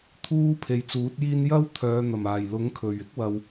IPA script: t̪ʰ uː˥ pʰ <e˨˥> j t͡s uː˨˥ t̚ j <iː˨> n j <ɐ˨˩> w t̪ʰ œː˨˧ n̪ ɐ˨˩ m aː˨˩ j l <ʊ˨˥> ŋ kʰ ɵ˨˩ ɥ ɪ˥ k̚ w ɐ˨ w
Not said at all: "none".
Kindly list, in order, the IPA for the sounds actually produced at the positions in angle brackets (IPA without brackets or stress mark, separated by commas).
e˨˧, iː˥, ɐ˥, ʊ˨˥